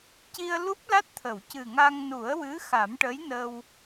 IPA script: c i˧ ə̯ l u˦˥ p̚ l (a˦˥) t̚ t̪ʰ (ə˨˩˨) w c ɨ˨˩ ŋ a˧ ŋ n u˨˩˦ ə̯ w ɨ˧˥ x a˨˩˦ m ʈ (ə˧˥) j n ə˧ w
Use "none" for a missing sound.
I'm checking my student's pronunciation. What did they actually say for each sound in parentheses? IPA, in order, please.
a˦˥, ə˨˩˨, ə˧˥

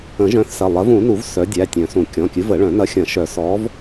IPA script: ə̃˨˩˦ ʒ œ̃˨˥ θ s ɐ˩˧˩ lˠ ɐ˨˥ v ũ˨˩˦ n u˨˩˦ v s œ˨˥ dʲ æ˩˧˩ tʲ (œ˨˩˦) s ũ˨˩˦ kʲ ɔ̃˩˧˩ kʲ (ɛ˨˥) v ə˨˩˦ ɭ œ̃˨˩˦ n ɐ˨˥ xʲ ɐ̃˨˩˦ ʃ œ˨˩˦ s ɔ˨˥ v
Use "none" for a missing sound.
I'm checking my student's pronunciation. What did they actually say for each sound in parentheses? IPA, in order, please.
œ̃˨˩˦, ɨ˨˥

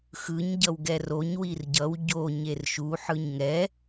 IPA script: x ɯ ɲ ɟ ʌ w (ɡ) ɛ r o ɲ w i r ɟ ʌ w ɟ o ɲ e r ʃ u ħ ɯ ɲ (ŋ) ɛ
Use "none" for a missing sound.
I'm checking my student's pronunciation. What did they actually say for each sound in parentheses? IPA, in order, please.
ɡ, ŋ

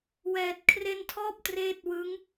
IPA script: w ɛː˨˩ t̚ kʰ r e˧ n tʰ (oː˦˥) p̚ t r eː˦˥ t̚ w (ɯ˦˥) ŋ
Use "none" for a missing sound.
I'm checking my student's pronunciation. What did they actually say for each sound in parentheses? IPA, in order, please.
ɔː˦˥, ɯ˦˥

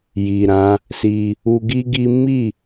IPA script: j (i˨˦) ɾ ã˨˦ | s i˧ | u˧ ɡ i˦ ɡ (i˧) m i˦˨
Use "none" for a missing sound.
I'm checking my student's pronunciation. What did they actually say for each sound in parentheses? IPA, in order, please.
i˨, i˦

